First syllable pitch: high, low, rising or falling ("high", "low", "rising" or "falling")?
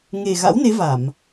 low